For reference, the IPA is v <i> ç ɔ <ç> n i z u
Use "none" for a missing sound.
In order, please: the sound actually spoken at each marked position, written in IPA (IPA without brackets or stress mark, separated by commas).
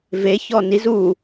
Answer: e, none